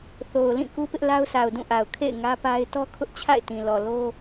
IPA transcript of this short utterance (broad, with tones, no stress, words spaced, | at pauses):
θo˨ʊ̯lĩ˦˨ ku˦pɪ˦ʔ la˦ʊ̯sʰa˨ʊ̯dũ˦˨ʔa˨ʊ̯ kʰḛ˦˨ɪ̯ ŋä˦pa˦ɪ̯ tɔ˦kʰʊ˦ʔt͡ɕʰa̰˦˨ɪ̯tĩ˨ lɔ˨lo˦